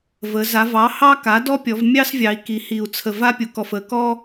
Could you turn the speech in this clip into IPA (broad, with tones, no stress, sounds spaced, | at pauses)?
v ə˩˧ z a˩˧ v ɑ˩˥ h ɑ˥ k a˩˥ d ɔ˥ pʲ ɔ˩˧ v mʲ ɑ˥ s vʲ ɑ˩˧ i̯ k i˩˧ h i˨˩ u̯ t͡sʰ ə˨˩ v a˥ pʲ u˩˧ k ɔ˨˩ f ə˩˧ k ɔ˥